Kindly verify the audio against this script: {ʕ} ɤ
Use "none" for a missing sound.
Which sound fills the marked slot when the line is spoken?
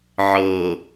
ʕ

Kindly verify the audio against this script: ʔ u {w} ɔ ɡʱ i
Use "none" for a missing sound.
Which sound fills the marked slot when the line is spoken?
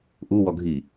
w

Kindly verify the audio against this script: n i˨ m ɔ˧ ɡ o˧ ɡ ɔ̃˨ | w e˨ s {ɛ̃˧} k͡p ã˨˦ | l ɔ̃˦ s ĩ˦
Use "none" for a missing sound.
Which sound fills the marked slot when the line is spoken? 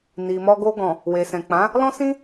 ɛ̃˨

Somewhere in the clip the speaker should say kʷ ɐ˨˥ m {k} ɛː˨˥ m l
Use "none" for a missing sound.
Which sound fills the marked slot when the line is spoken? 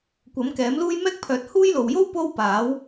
k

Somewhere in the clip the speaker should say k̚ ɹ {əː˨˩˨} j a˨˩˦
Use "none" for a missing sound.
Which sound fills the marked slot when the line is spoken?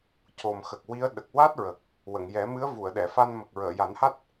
əː˨˩˨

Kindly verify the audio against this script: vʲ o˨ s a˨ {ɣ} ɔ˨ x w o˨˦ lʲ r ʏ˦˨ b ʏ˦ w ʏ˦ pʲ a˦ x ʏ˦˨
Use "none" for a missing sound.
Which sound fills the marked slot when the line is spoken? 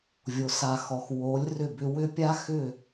x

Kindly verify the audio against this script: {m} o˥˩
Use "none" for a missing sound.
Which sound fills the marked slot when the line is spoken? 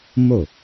m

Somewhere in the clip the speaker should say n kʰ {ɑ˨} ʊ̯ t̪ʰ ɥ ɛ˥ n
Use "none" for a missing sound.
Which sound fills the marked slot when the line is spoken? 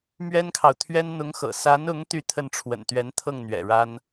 ɑ˨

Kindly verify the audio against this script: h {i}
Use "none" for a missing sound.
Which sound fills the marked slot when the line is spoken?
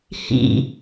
ḭ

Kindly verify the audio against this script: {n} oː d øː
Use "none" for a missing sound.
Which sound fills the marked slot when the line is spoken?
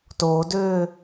t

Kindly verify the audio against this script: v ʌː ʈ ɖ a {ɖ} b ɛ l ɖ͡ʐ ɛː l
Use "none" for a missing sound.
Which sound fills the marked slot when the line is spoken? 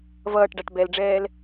ʈ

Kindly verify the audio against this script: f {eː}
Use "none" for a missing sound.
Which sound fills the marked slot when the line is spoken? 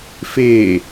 eː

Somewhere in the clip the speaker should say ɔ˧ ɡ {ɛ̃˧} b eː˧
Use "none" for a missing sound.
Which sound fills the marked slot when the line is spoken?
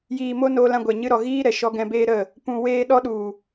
ɛ̃˧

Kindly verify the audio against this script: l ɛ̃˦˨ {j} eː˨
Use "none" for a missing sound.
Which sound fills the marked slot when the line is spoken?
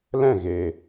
ɣ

